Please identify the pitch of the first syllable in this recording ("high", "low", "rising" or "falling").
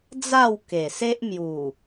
falling